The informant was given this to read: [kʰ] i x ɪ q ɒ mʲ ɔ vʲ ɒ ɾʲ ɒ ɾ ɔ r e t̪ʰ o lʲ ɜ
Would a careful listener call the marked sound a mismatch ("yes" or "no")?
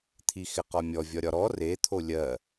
yes